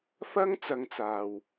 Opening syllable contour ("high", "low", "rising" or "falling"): high